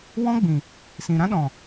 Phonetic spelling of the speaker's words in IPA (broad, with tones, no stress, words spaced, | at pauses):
wɔ̃˦ɡ͡bĩ˨ | sĩ˨ɾã˦ɗɔ̃˨